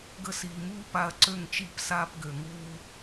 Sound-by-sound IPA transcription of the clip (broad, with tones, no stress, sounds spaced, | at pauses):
ɡ ə˧ s iː˨ m uː˦ p a˧ ɐ̯ ǀ ø˦˨ ŋ t͡ʃ i˦˨ p s aː˧ p ɡ ø˨ ŋ uː˧